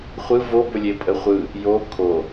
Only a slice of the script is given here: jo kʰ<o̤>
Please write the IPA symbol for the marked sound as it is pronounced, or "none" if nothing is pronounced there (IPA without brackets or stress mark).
o